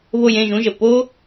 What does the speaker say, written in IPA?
βo˥˧jẽ˥˧ʒũ˧˥˧ʒə˨˩ po˥

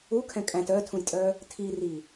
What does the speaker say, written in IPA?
ukʰɛ̃ kʼæ̃t œtʰũjtʼœ | tʰiri

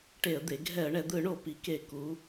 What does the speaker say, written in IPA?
ʈe˧˩˧ə̯d̪e˩˧ ɡʱɛ˧˩˧ə̯ɳɛ˩˧d̪ɯ˧˩˧ɳo˧˩˧ pi˩˧ke˧˩˧ ku˩˧

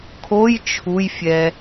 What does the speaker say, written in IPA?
kʰoj t͡ʃʰujfʲɛ

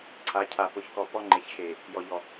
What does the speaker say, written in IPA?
ǀʰa˨˦cʰa˨pʊ˨˦çkɔ˨ pɔ˦ŋ͡ǃe˨çxe˨ | jɔ˨ʎɔ˨

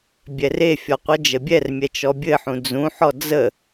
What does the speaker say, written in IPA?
bʲɛrefʲɔ qʷɜd͡ʒəbʲɛrmʲɛ t͡ʃɔbʲɘħũ d͡zũħɔ d͡zə

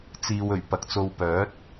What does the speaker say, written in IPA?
t͡siː˨w ɵ˨˩ɥpɐ˨k̚ t͡so˧w pœː˨˥t̚

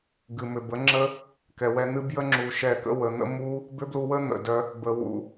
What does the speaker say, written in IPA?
ɡɨ˨mʏ˨bə˨˦ ŋ͡ǁə˦ | kɛ˨wɛ˧n̪ɨ˦ bjə˦ŋ͡ǁu˨ ʃɛ˨kə̰˧ wə˨n̪ə̰˦mu˦ | bʏ˦blu˧wə˦ n̪ə̰˨dœ˧ | bə˨wṵ˨

